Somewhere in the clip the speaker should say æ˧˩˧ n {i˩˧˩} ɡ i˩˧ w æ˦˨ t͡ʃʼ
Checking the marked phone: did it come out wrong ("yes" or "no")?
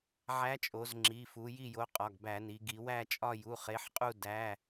yes